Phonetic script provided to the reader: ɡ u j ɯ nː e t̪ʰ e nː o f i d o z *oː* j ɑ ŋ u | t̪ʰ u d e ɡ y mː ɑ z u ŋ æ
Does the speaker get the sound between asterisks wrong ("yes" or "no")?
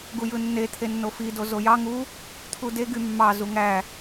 yes